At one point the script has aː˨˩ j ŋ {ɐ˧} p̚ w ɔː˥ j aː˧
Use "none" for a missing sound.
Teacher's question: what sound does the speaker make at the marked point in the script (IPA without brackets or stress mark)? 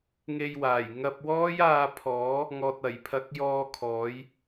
ɐ˧